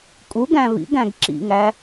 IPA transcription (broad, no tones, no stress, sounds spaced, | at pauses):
kʼ u ɡ æ̃ β ḭ ɡ æ̃ ɡ ǁ ḭ ŋ æ